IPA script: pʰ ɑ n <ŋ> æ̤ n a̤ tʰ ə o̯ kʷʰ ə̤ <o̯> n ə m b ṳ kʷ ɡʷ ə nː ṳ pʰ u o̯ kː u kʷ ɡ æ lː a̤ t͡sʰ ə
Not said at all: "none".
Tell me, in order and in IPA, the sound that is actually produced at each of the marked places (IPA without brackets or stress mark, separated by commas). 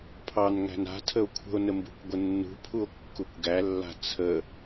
ŋ, o̯